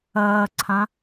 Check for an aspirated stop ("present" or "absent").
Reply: present